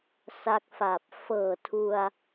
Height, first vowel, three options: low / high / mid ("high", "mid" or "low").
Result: low